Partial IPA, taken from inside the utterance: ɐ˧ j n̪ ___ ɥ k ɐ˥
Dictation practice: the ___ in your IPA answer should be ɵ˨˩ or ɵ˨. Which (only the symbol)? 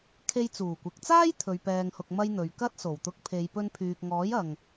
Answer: ɵ˨